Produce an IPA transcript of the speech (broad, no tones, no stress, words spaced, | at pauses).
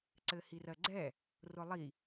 ǀɘhirɜɡ͡ǀɛ | rʊlˠi